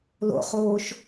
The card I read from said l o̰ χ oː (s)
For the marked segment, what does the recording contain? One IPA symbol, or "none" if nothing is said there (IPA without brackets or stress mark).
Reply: ʃ